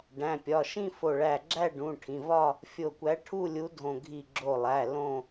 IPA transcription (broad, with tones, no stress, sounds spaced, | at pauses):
ɖ æ̃˩˧˩ pʲ ɒ˩˧˩ ʃ ĩ˥˧ f o˧˩ ɭ æ˧˩ ɡ͡ǁ æ˥˧ ɖ ũ˩˧˩ ʈʰ ĩ˩˧˩ v ɒ˥˧ | fʲ o˧˩ kʷ æ˨˥ ʈʰ u˥˧ lʲ u˨˥ dʱ õ˧˩ ɡʱ i˧˩ ɡ͡ǁ o˧˩ lˠ æ˩˧˩ l õ˥˧